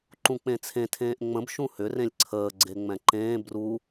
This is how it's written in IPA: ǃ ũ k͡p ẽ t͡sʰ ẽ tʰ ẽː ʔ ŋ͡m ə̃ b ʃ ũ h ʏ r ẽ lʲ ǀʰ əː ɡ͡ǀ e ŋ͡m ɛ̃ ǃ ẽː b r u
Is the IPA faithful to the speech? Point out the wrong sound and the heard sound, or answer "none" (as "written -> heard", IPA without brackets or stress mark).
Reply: none